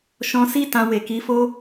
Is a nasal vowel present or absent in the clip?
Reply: present